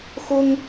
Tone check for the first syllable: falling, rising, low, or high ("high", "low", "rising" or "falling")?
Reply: high